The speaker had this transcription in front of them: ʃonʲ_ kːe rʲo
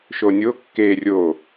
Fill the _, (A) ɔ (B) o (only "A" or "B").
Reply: B